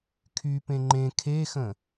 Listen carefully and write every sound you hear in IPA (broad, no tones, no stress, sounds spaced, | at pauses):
kʰ y p ẽ ŋ͡ǃ ẽ kʰ e x ə̃